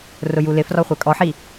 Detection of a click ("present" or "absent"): absent